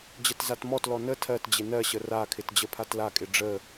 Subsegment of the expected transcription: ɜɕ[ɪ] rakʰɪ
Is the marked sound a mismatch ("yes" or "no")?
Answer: yes